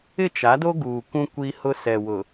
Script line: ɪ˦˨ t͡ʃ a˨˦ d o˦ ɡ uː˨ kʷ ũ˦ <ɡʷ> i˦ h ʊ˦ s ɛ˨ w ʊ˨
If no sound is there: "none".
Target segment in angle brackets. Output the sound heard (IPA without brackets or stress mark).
kʷ